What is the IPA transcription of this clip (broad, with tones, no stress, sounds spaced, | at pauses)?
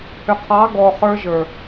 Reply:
h ʏ˨ qʰ ɑ˨˦ ɡ ɔ˨ χ ə˞˦ ʒ ə˞˨